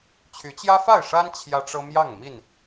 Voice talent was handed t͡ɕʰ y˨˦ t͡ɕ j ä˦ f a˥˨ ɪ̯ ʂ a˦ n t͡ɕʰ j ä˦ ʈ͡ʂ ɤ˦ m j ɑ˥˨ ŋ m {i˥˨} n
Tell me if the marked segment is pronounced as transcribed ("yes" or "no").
yes